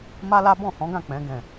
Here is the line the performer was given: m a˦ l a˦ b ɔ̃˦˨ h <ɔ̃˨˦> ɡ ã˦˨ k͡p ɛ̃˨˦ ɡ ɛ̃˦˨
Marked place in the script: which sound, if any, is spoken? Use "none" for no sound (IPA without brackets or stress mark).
ɔ̃˨˦